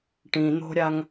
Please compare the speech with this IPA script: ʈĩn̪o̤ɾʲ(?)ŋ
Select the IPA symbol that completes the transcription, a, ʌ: a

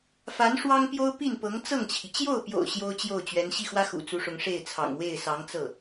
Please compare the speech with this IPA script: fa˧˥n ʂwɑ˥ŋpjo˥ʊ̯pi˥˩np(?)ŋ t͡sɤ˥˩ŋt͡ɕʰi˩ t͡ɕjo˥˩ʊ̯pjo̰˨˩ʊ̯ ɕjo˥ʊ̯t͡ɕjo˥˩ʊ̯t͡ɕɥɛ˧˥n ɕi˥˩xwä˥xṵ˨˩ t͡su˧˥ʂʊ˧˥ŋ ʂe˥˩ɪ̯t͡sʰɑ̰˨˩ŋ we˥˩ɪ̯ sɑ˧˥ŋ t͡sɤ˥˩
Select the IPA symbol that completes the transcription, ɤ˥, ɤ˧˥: ɤ˧˥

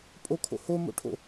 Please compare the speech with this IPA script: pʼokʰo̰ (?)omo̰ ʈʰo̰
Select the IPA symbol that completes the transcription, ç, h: h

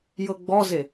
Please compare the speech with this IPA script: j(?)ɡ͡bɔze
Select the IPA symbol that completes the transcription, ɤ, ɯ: ɤ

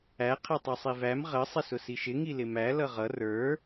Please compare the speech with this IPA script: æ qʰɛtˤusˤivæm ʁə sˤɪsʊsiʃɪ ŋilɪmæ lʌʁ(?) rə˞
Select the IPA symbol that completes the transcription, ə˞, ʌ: ʌ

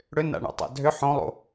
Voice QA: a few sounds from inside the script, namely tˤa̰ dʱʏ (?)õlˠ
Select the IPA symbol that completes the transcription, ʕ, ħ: ħ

